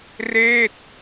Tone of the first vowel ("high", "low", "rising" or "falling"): falling